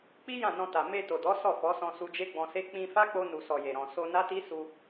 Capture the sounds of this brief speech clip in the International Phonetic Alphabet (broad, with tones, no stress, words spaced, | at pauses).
k͡pi˦ jã˦˨nɔ̃˧ta˨ me˧to˨dɔ˨˦ sɔ˦˨fɔ˨˦sɔ̃˧ su˧d͡ʒe˦ɡ͡bɔ̃˧se˦ k͡pĩ˧fa˦k͡po˧ nu˨sɔ˨ je˨ɾɔ̃˨ so˧na˦ti˦ su˧